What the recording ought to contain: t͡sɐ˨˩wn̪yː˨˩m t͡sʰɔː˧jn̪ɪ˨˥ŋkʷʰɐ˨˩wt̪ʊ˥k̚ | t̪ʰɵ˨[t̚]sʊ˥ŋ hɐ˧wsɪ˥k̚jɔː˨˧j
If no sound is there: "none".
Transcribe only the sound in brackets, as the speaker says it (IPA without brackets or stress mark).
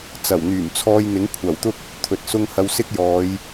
t̚